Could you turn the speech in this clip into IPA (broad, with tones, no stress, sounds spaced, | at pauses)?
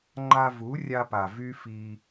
ŋ͡ǃ a˧ v u˨˦ rʲ a˧ p a˨ v y˦ f i˧